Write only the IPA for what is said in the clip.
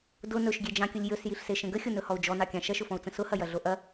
d ʊ n ɵ ʃ ɡʲ e d͡ʒ ɑ̃ kʲ ʊ lʲ j ɵ s j i ɬ s e ʃ ə̃ ɡ ə xʲ ʊ n ɵ h ɔ u̯ d͡ʒ ɔ n ɑ kʲ ɑ̃ ʃ ɐ ʃ ʊ f ɔ̃ u̯ t͡s ə̃ s ʊ h ɐ j ɐ ɮ o ʔ ɐ

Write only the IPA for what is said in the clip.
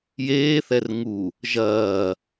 j eː θ ɛ r ŋ u | ʒ ɐː

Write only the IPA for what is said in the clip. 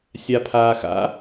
sʲ a pʰ aː x a̰

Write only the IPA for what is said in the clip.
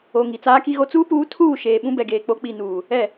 o˨ ŋ i˨ t͡s aː˦ k i˦ ɣ o˦ t͡s uː˦ p uː˨˦ tʰ uː˦˨ ʃ eː˨ ɓ ũ˦ b ɛ˨ ɡ eː˨ k͡p o˨˦ k͡p i˨ n uː˨ | ɛ˦˨

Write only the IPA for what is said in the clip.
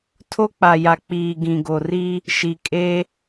tʰ o˦ k͡p a˨ j a˨ k͡p iː˨ ɡ ĩ˨ ɡ o˨ r i˦ | ʃ i˨ kʼ e˦

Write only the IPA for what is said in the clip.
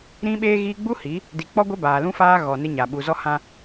ɾ ĩ˦ ɓ eː˦ ɣ iː˦ ɡ͡b u˦ h i˨˦ | d i˨ k͡p ɔ˦ ɡʷ e˦ b aː˨ l ũ˦ f aː˦ ɣ ɔ˨ n ɪ˦ ɲ a˨ ɓ u˨ z ɔ˦ h ã˦

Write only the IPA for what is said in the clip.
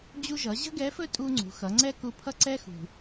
d͡ʑ u˧ ʒ ʌ˩˧ ʑ ə̤˥ ɡ ɛ˧˥ f ɵ˥ tʼ u˧ ŋ͡ǀ ṳ˩˧ x ʌ˩˧ ŋ͡ǀ ɛ˥ k u˧ pʰ ʌ˥ ǀ ɛ˧ x ṳ˩

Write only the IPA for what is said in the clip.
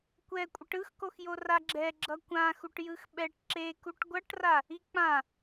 kʷ ɛ kʷʼ ʌ ʈ ɯ x k o x j o r a ɡ͡ǁ ɛ ɡ͡ǁ ʌ kʷ ã x u ʈ j ɯ x ɓ ɛ ʈ ǁ e k u ʈ ɡʷ ʌ ʈ r a | i k͡p ã

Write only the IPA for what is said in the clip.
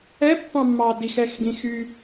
ɛ pː ɑ̃ mː ɑ d i x ɛ x ɡ ĩ x y

